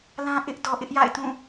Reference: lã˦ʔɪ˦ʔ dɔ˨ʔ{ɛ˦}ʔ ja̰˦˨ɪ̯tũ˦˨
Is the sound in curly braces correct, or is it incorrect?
incorrect